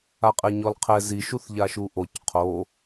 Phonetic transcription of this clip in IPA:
aqʼeɲɔlqʰɛ ziʃuθ ʎaʃuʔoc qʰo

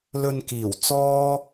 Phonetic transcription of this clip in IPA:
lɵ˧nkiː˨˩w t͡sɔː˥

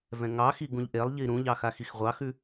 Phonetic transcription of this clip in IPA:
vɛ̃ŋɑxi ɡũʎʔelˠʎi ɾũʎɑ xaxixʁʷɑxʉ

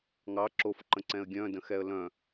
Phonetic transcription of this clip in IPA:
ŋɑ ǁofǃə̃ǀɛ̃ə̯ ɡʲœ̃də̃xɛə̯ lœ̃

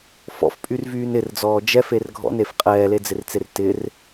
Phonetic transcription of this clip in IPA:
fɔ̰fpʼyrvyːn ɪrd͡zɔː d͡ʒɛfer ɡʱɔ̰nef qʼɛːled͡zɪrt͡ser tɪr

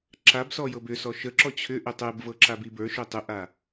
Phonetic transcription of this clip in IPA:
ǁabsɔ jɤbʏsɔ ʃəǁɔ t͡ɕʰʏʔʏ tˤebvɤ ǁabibə˞ʃʏ tˤʏʔa

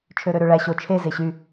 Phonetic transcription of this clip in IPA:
t͡ʃʰøɾøɾøɭæ ɕo t͡ʃʰe zeɕy

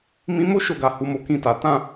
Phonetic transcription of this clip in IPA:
mĩ˧mo˦ ʃo˦˨ɡa˨ hu˨˦mo˧kĩ˧ta˨ tã˧

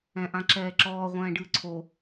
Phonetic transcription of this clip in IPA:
ɛ̃ʔãǁɛːǁɔː ʁʷɛ̃ːɖɨːǀʰo

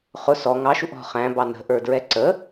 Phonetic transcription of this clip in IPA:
χʊ sɔ ŋɑʃuʔ ɔ̤ χæ̃bɑ nə̤ʔə˞dɹɛ ǀə

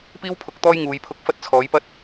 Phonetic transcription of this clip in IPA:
piː˥w pʰʊ˧k̚t̪ɔː˥j ŋuː˨˧jpʰʊ˧k̚ fɐ˥t̚t͡sʰɔː˨˥jpɐ˥t̚

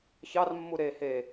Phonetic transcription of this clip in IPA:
çɑrmːu ɾe he

